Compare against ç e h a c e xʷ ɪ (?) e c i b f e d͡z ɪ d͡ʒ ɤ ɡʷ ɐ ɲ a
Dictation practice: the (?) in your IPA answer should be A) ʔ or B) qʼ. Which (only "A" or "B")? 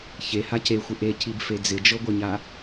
A